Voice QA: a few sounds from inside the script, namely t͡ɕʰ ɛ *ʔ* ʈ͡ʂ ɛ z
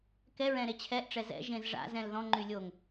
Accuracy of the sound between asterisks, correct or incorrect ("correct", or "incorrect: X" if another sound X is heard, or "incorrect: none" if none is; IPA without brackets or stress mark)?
correct